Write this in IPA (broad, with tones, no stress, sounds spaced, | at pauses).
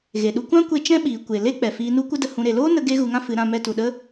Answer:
ɣ e˨ ɗ u˧ kʷ ã˦ kʷ e˧ t͡ʃ ɛ̃˦ ɓ iː˨ kʷ e˨ l e˦ k͡p ɛ˨ f iː˧ n u˦ kʷ ə˦ d ə˧ h ũ˧ ɾ e˨ l oː˦ n ə˧ ɡ e˦ ɣ u˧ ŋ ã˦ f ɨ˨˦ ɾ ã˧ m ɛ˧ t u˨ ɗ ə˦